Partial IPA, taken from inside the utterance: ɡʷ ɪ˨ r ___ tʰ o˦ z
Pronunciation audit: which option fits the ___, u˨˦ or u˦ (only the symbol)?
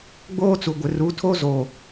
u˨˦